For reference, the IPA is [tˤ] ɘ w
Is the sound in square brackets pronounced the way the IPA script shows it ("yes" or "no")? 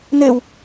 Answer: no